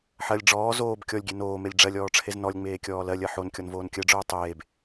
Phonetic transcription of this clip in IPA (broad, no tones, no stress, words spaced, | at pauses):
ħɜlʲ ɖ͡ʐɔː zoːb kʲɔlʲɡʲe noːmelʲ ɖ͡ʐɜlʲɔːʈ͡ʂʰez nɔlʲŋ͡meːkʲɔː lɜlʲɜ ħonkʲɔnvoːn kʲɜɖ͡ʐoː tˤeːb